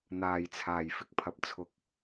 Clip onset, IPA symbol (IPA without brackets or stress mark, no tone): n̪